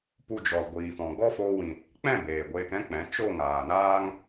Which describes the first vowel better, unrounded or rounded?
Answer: rounded